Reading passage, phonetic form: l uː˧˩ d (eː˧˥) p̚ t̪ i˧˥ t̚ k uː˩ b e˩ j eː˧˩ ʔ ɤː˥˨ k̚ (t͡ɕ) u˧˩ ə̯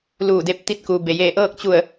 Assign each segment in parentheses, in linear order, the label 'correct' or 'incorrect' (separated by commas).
incorrect, correct